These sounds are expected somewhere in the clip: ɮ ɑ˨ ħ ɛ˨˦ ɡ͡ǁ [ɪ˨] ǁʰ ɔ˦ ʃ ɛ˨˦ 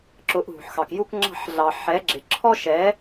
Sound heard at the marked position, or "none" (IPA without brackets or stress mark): ɪ˨